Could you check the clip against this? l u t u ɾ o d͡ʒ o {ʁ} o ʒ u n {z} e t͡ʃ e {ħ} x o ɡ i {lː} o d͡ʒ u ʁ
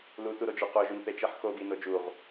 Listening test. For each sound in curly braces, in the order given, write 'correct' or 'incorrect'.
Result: incorrect, incorrect, correct, incorrect

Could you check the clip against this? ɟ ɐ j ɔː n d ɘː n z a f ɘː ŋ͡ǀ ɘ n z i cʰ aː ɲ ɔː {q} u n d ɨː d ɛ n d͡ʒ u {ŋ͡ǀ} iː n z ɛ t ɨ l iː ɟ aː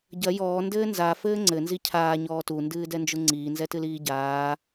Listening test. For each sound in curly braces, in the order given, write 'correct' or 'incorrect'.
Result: incorrect, correct

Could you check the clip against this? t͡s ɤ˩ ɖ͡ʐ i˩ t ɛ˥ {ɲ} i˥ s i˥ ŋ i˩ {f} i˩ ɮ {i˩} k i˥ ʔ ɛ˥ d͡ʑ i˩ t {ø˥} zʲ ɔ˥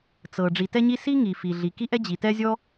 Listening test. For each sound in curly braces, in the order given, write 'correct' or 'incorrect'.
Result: correct, correct, correct, incorrect

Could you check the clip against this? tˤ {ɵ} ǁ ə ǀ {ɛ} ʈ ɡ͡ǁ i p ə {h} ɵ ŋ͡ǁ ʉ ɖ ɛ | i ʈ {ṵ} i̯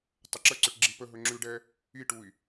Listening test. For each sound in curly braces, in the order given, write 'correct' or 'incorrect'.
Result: incorrect, incorrect, incorrect, incorrect

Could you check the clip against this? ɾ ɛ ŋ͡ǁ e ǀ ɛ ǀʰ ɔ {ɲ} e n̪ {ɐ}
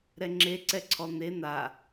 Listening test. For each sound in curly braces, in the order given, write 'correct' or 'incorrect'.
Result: incorrect, incorrect

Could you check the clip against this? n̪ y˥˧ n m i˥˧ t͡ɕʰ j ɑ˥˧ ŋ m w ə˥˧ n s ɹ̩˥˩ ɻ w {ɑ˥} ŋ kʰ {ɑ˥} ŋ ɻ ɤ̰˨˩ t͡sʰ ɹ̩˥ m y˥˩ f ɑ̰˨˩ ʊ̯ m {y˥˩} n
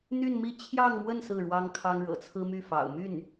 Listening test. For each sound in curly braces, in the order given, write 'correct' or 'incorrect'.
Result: correct, correct, correct

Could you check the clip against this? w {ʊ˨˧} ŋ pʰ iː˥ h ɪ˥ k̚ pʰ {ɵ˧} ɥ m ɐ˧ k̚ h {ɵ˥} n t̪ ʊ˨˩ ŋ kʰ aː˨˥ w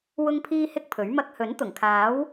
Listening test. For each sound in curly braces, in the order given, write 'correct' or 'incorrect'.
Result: incorrect, incorrect, incorrect

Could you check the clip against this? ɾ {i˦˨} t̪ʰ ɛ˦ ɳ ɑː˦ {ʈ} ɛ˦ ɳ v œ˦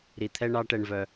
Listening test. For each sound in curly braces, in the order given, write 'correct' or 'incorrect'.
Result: incorrect, correct

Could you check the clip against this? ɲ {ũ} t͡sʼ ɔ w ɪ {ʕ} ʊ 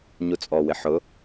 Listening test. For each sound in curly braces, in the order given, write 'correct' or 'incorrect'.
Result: incorrect, incorrect

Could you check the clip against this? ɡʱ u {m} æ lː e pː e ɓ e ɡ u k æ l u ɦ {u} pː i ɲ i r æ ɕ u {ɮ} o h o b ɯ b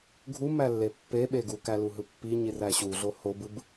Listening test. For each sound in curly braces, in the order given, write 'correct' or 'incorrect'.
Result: correct, incorrect, correct

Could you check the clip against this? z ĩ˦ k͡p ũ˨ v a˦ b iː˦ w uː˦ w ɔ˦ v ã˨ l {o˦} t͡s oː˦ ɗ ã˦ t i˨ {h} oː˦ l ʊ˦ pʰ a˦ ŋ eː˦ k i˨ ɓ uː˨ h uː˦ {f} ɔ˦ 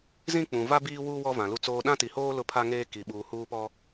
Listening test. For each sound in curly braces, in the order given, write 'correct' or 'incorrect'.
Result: incorrect, correct, incorrect

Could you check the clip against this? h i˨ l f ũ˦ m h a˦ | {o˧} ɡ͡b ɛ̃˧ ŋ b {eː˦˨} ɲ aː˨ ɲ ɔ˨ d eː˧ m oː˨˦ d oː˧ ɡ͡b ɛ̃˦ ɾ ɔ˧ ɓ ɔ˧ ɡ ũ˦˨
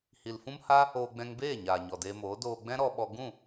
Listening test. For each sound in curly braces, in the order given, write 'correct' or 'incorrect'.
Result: incorrect, correct

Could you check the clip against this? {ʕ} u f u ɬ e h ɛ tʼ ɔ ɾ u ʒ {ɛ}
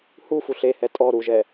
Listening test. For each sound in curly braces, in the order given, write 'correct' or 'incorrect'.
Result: incorrect, correct

